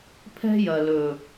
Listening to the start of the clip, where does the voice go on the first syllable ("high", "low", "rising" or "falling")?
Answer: high